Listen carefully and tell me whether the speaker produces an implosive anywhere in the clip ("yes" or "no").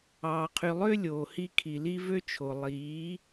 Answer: no